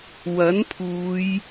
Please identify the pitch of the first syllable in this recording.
rising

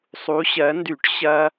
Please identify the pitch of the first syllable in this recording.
rising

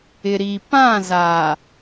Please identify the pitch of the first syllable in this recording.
low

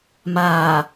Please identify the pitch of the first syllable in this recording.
low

